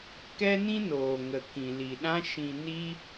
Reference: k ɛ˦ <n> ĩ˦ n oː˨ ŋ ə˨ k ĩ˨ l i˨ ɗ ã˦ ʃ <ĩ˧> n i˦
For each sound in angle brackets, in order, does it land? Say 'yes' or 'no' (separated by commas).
yes, yes